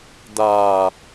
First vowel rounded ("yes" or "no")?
no